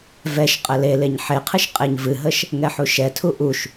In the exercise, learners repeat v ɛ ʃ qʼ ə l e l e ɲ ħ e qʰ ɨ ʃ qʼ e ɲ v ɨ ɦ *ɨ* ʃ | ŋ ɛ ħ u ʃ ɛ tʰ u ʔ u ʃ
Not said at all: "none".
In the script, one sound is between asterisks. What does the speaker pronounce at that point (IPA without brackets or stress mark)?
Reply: ə